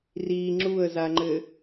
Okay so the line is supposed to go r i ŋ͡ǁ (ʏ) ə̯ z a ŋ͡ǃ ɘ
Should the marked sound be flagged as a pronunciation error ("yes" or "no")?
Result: yes